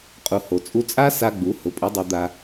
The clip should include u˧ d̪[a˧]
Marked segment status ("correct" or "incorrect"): correct